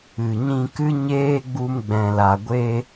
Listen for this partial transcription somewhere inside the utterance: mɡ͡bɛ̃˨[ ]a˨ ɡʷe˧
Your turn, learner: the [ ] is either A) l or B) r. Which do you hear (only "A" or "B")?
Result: A